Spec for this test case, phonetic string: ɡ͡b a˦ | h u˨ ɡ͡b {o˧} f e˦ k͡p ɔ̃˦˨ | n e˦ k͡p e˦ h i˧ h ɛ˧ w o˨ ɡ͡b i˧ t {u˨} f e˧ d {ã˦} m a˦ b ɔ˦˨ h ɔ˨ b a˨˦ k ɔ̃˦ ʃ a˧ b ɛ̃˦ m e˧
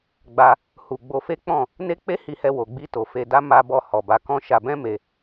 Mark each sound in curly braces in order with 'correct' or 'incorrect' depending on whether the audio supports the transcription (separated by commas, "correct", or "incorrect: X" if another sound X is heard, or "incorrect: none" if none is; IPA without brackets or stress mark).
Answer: correct, incorrect: o˨, incorrect: a˦